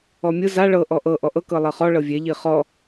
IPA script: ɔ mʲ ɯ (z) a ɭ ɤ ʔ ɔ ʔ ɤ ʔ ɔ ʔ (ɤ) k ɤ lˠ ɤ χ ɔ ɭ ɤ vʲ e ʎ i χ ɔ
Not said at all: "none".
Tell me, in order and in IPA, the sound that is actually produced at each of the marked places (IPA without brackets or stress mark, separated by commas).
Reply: z, ɤ